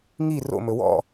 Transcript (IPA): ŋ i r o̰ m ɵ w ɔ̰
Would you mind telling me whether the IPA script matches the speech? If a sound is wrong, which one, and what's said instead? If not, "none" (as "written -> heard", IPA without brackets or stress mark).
none